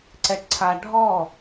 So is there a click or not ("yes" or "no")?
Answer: yes